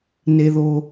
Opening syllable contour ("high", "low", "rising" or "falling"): low